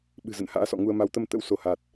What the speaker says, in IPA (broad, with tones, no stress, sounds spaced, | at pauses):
ɓ ɨ̤˨˩ z ə̰˧˨ n h a̰ː˧˥ s ɔ̰˧˨ ŋ u˧ ə̯ m a˨˦ w t̪ ə˧ m t̪ ə̰˧˥ w s o˧˩ h a˨˩ t̚